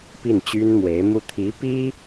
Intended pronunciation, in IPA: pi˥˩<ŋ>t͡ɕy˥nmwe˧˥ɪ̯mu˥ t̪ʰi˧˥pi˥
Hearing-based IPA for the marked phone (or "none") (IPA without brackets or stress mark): n